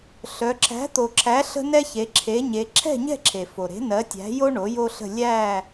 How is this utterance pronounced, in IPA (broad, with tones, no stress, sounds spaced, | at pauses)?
ɬ œ˩˧ ǁ æ̤˩˥ t̪ o˩ ǁʰ æ˩˥ ɬ ə̤˥ n ɛ˥ ç e˩˧ ǁʰ e˩˥ ɲ e˩˧ ǁʰ ɛ̤˥˨ ɲ ɛ̤˥˨ ǁʰ e˩ f o˩ ɾ e̤˩˥ n ɜ˩˥ tʲ æ̤˩˥ j o˥ ɳ o˩˥ j o˥ ɬ ə̤˥˨ lʲ æ˥˨